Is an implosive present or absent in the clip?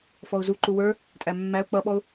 present